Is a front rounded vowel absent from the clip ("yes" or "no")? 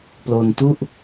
yes